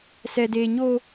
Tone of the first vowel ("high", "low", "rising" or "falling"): high